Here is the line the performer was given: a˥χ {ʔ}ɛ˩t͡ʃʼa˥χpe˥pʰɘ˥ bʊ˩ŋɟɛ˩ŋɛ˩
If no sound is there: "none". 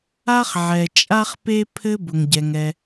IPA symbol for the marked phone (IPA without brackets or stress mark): ʕ